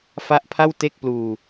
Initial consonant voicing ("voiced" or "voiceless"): voiceless